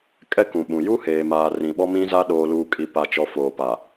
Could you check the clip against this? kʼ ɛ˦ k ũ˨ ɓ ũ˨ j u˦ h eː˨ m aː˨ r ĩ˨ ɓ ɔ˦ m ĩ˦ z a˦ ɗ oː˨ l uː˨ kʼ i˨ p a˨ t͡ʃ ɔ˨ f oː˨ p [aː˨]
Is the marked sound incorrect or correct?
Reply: incorrect